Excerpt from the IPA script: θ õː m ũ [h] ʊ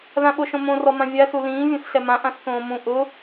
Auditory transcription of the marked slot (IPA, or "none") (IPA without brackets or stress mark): ʔ